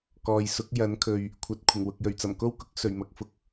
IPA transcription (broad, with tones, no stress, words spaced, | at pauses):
kɔː˨j sʊ˨˥k̚ jɐ˨˥nkʰɵ˨ɥ | kʷʰɐ˨t̚ kʷʰɪ˨˩ŋwʊ˨k̚ jɵ˨˩ɥt͡sɐ˨˩mko˥wkʊ˨˥k̚ sɵ˨˩ɥmɐ˨k̚fʊ˨˥k̚